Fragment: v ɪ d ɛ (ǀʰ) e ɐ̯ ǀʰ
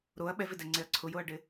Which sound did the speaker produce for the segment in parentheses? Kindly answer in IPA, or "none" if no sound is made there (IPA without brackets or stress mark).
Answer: ŋ͡ǀ